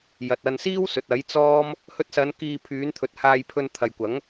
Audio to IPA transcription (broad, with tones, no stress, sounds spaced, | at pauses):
j ɐ˨ t̚ ɐ˧ n s iː˥ w s ɵ˨ t̚ ɐ˨˥ j t͡s ɔː˥ m | h ɵ˧ t̚ s ɐ˨˧ n k iː˧ pʰ yː˨˧ n t̪ʰ ɵ˨˥ t̚ h aː˧ j pʰ ɵ˧ n t̪ʰ ɐ˨ j kʷ ɐ˨˥ ŋ